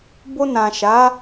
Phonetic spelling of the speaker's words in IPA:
b o˧ n ã˨ ʃ a˨˦

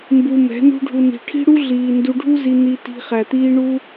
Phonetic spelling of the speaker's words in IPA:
m b u˧ m ɛ̤˨˦ n ṳ˦ ɖʱ u˧ n i̤˨ ʈʰ i̤˦ ɽ u˦ ɮ iː˨ n d u˧ ɖʱ u˦ z i˧ n̪ i˧ t i̤˧ χ æ˨ t̪ iː˦ ɳ u˦

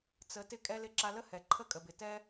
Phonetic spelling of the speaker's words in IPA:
t͡s ə˨˦ t ɪ˧ kʼ ɛ˧ l ɪ˧ ǁ a˧ l ə˦ h ɛ˨ ǃʰ ə˦ kʼ ə˨ b ɪ˨ t ɛ˦

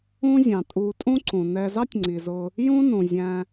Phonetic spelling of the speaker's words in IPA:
ũ˦ zʲ ɑ̃˩ tʼ u˨ tʼ ũ˦ ǀ ũ˩ n ɛ˨ z ɑ˥ tʲ ŋ͡ǀ i˩ z ʊ˨ | j ũ˦ n ũ˩ zʲ æ̃˨

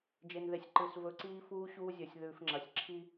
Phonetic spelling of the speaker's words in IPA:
d͡ʒ e˨ n ð e˨ sʲ ǃ ɨ˨ s v ɵ˨˦ ǀ iː˦ f uː˦ ɕ uː˦ zʲ ɵ˨ sʲ ð ʉː˨ f ŋ͡ǁ ɐ˨ sʲ ǁʰ i˦

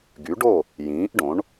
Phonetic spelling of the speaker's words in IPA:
ɡ y˨˥ ɖ o˥˨ | j ĩː˨˥ ʔ ɖ õ˨˥ ɳ

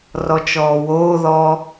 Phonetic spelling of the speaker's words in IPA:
r ɔ t͡ʃ ɔː w oː ð ɔ

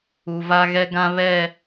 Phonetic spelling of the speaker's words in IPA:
u˨ v a˦ ɣ ɛ˦ ɡ ã˦ β ɛ˦˨

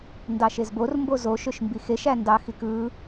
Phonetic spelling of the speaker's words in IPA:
n d ɑ ʃ e z b o r m b o z o ʃ ø ʃ m b i x e ʃ æ n d ɑ x i k ɯ

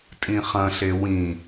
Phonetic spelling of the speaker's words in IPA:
tʼ ĩ χ ɐ̃ ɬ e w ĩ

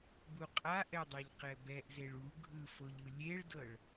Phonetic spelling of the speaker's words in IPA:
b u qʼ a ʔ ɛ dˤ a ʎ q ɛ b ɛ ʔ z e ɭ u ɡʱ ɯ f o ʎ ɯ lʲ e ɭ d ɤ ɭ

